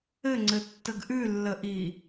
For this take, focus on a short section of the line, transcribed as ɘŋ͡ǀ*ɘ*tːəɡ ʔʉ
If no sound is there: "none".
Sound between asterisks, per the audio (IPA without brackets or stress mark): ɘ